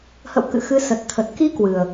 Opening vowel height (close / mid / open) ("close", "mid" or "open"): mid